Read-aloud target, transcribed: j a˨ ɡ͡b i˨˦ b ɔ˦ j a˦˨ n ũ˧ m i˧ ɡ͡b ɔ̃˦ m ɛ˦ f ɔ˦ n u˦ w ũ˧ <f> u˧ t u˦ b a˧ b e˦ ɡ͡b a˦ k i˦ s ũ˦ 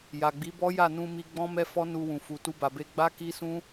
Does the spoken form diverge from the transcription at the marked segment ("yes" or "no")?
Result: no